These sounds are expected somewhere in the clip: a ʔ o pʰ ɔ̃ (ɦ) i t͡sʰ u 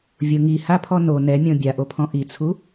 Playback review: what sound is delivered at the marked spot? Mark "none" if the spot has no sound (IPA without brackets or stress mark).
ʔ